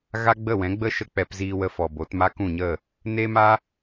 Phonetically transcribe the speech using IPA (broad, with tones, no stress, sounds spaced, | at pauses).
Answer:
ɣ a˦ ɡ͡b ə˦˨ w ɛ̃˨˦ ɡ͡b ə˦ ʃ ə˦ k͡p ɛ˧ p z iː˧ w ə˧ f ɔ˨ b o˨˦ t m a˦ k ũ˦˨ ɲ ə˦˨ | n e˦ m a˦